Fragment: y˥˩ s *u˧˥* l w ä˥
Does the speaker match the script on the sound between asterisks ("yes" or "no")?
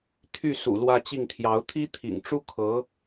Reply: no